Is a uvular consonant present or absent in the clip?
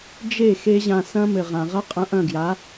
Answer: present